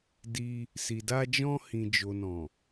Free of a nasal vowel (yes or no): no